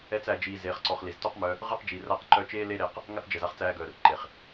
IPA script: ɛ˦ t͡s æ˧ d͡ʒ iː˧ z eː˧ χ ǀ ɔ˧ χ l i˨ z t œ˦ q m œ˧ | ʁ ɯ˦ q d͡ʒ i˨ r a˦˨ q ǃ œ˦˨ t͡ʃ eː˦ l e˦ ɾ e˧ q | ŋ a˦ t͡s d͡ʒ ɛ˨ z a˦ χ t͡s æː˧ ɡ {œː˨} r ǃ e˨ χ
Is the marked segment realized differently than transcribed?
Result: no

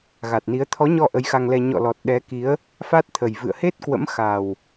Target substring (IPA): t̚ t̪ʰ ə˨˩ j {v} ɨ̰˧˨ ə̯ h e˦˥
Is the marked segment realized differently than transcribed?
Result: no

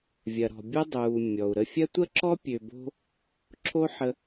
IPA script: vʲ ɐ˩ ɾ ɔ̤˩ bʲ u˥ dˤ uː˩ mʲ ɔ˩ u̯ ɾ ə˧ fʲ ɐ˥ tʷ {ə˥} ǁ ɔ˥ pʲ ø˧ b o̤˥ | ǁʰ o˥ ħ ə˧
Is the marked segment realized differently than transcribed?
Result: no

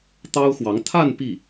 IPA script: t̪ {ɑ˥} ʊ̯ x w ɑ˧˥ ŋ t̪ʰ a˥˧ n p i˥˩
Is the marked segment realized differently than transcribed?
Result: no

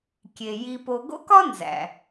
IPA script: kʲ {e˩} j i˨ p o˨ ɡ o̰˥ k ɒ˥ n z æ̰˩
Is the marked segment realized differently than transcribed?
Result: no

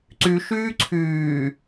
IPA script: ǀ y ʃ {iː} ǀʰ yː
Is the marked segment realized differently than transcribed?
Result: yes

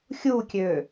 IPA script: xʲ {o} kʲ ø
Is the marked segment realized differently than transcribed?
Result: yes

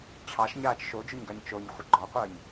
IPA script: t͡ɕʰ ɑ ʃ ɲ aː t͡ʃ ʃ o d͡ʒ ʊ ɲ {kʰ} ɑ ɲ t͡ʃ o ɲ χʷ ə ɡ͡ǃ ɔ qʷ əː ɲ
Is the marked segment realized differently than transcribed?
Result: yes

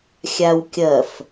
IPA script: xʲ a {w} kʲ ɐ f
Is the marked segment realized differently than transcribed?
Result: no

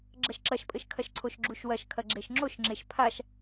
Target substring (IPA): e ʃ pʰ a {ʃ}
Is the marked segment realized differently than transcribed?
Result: no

